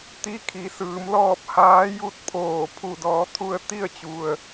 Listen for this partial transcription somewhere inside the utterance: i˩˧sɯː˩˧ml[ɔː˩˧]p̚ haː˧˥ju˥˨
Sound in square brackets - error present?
yes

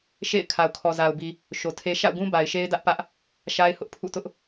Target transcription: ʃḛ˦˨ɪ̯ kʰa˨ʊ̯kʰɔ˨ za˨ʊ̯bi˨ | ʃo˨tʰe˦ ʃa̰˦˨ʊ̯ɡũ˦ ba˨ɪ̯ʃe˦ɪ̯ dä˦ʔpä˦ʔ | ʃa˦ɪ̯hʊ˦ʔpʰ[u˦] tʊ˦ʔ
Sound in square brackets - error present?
yes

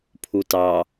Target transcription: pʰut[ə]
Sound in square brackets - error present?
yes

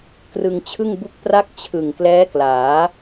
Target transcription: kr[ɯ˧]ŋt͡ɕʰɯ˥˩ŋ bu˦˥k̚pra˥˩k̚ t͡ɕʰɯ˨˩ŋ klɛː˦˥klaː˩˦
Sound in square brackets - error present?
no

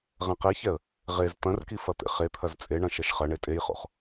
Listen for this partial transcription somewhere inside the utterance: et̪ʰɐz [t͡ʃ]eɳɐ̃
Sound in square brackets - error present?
yes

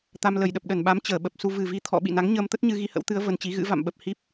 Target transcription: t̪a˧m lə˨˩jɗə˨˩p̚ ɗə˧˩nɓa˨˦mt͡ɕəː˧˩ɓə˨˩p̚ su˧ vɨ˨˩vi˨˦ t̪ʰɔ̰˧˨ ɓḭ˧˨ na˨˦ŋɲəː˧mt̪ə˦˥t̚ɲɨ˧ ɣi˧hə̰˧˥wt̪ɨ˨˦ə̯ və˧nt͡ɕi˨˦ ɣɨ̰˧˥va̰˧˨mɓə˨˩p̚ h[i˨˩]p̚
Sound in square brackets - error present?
yes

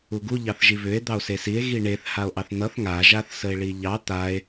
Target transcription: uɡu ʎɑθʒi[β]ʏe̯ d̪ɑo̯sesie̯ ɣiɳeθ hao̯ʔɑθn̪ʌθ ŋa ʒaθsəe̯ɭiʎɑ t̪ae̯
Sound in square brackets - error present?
no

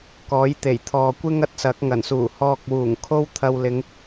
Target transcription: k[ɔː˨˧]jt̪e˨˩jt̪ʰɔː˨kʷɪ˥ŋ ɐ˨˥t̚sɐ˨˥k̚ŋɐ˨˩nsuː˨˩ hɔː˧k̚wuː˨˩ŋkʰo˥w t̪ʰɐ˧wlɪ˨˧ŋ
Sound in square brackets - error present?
yes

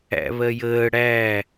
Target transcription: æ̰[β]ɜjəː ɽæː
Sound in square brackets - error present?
no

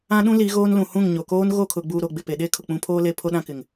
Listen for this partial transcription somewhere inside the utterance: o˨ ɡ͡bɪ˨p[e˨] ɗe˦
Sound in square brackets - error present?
no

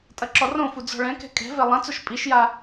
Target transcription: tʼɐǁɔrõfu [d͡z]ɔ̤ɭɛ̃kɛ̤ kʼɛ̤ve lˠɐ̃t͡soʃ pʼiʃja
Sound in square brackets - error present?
no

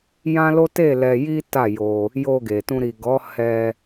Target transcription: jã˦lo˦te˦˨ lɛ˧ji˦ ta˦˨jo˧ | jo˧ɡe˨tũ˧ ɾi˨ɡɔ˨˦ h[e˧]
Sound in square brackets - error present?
yes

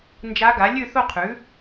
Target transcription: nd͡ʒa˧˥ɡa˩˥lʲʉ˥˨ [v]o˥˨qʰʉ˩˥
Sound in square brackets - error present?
yes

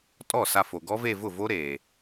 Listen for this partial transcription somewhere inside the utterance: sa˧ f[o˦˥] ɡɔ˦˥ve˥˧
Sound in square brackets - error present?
yes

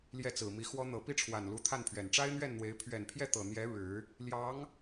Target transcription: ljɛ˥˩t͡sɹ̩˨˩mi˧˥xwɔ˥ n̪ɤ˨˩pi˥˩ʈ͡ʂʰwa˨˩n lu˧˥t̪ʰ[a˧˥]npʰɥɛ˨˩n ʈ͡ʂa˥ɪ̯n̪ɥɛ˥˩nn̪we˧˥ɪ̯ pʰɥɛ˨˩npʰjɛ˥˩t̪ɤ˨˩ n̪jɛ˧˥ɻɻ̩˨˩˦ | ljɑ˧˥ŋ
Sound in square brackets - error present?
yes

